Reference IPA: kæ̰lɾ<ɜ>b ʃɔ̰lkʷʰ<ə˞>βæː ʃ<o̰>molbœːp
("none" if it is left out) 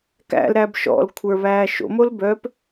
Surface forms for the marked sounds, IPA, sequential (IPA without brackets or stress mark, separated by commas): æ, ə˞, o̰